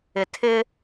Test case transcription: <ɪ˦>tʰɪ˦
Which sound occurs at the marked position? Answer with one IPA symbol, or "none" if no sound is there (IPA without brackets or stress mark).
ɪ˨